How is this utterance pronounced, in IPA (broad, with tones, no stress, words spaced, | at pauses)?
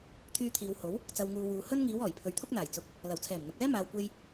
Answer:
t̪ʰyː˧t̪ʰiː˨w ho˨˥w | t͡sɐ˨wŋuː˨ wuː˨ hɵ˥n ŋiː˨˧w ɔː˨˩jpʰɵ˨˧ɥt̪ʰʊ˥k̚n̪aː˨˩j t͡sʊ˧k̚ | lɐ˨˩wt͡sʰɛː˨˩m n̪ʊ˨k̚ɛː˥ maː˨wkʷe˧j